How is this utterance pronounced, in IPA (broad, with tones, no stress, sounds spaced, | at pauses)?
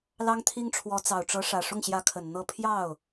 l ɑ˥ ŋ t̪ʰ i˥ ŋ ʈ͡ʂʰ w ɔ˧˥ t͡s ɑ˨˩ ʊ̯ ʈ͡ʂ ɤ˧˥ ʂ ä˨˩ ʂ ʊ˥˩ ŋ ɕ j ä˧˥ kʰ ə˨˩ n n̪ ɤ˥˧ pʰ j ɑ˥˩ ʊ̯